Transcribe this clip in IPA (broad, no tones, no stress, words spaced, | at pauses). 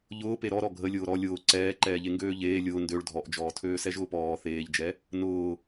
ʎʊː peɾɔ ɾɔɡʱə lʲʊːɾɔ lʲʊː ǀɛː ǃɛːʎeŋɡøːʎeː lʲʊː ndøɭ dʱɔʔd͡ʒɔːtʰøː sɛʒʊːpɔː θeːʎd͡ʒɛ | nʊː